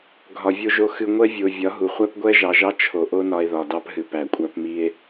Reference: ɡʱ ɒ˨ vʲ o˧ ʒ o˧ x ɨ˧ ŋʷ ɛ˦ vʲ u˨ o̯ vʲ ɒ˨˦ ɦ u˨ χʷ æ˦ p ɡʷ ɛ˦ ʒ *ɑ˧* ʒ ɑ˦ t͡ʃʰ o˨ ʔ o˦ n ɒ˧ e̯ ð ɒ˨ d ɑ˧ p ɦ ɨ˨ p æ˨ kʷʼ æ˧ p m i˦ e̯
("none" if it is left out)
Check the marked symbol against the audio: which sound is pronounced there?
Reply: ɑ˧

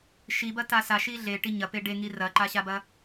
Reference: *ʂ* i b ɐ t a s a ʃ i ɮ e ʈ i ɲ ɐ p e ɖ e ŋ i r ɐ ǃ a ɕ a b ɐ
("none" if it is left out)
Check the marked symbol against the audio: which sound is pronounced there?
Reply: ʃ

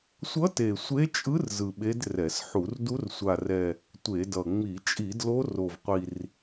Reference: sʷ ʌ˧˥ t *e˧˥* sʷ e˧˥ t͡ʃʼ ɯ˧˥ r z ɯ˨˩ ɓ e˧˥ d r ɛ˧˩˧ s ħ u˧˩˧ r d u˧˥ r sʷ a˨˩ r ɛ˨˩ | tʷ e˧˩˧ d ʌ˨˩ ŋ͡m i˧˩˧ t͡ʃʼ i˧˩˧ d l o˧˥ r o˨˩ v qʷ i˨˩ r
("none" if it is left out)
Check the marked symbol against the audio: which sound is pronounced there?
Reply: e˨˩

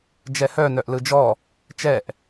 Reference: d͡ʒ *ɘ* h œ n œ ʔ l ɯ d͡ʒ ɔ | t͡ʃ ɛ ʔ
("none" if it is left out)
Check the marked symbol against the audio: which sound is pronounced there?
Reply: ɛ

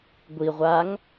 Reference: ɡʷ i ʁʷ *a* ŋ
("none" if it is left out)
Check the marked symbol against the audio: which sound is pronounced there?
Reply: a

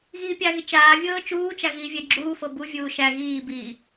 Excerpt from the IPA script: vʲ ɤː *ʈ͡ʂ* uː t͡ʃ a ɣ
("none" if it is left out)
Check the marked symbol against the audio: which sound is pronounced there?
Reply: t͡ʃ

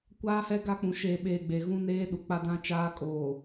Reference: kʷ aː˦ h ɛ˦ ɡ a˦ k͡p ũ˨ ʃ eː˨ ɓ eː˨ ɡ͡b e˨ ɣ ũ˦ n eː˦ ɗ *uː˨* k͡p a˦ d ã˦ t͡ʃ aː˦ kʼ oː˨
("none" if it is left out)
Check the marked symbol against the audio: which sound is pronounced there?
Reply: u˨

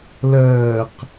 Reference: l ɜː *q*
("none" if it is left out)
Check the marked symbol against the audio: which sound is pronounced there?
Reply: q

